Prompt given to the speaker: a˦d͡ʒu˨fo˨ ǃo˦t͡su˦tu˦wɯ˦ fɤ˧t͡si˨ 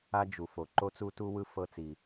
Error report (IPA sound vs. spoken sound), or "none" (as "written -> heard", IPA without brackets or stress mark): none